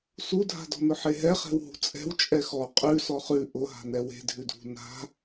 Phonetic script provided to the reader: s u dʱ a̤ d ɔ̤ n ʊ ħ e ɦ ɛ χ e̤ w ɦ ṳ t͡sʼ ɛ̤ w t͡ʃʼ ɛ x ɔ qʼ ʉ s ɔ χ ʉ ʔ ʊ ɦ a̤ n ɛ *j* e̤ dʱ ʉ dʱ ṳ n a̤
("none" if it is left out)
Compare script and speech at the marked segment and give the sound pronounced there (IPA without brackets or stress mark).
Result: w